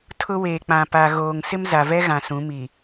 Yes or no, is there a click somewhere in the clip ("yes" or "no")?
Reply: no